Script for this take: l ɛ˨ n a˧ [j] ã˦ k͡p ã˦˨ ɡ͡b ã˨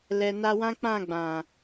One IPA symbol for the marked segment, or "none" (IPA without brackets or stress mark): w